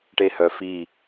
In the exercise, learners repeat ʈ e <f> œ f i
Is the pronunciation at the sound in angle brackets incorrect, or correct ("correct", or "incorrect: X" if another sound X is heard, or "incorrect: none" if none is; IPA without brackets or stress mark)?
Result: incorrect: h